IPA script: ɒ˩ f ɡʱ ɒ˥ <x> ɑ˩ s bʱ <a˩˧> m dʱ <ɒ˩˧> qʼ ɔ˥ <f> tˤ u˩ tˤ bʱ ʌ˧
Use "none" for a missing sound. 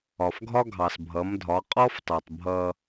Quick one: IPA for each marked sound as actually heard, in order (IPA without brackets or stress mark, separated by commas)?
ɡʱ, ʌ˩˧, ɒ˩˧, f